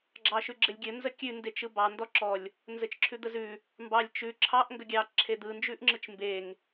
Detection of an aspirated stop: present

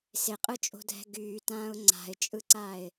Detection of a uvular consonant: present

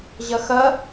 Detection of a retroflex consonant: absent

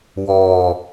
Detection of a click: absent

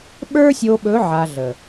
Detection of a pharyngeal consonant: present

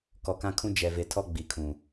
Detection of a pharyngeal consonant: absent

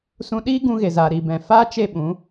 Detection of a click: absent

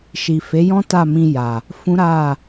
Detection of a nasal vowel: present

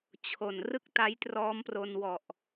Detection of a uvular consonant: absent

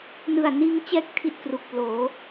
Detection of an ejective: absent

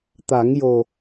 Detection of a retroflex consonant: absent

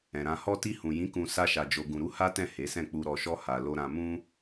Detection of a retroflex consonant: absent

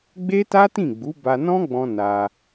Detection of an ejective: absent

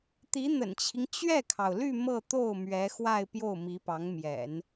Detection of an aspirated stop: present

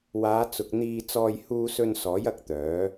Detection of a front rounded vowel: present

